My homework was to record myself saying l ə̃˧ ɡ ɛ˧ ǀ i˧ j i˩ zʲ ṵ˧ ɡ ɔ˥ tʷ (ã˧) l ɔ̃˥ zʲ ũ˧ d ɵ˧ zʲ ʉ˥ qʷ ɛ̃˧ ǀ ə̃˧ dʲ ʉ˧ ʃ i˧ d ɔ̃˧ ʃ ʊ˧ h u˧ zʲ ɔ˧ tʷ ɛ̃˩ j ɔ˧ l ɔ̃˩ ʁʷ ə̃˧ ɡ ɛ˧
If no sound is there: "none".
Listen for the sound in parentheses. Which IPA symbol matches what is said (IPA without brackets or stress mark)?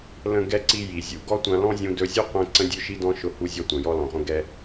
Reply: ã˧